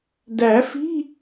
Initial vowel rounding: unrounded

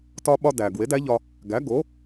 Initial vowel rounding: rounded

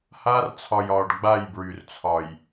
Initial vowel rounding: unrounded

